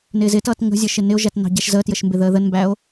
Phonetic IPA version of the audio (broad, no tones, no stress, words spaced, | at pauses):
nɪːzɪtʌːt ŋə̤zʲəʃɪ nɪo̯ʒætnɑ̤ ɟɛʃzəːtjəʃ mbɪðəːðənmbæo̯